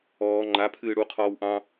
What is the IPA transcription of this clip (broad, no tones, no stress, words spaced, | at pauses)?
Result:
ɔː ŋ͡ǃapʰɨː ɽuqʰɔːw ʔɑ̃